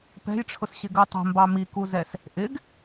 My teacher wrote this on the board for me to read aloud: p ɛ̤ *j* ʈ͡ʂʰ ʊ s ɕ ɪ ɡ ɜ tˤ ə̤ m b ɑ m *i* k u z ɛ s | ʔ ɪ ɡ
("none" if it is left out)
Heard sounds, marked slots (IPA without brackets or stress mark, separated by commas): j, i